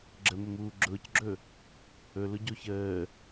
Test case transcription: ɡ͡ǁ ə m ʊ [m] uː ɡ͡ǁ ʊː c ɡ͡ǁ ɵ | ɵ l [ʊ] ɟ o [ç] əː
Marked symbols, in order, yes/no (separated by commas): yes, yes, yes